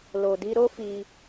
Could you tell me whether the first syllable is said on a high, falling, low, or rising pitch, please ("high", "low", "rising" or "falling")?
low